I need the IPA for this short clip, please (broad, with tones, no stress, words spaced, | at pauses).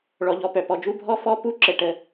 ɭɔ˩ʎɔ˩pœ˩pɔ˩ d͡ʒu˥˨bʱɔ˥˨ fɔ˥˨ pu˥˨ǁə˩ ʈə˩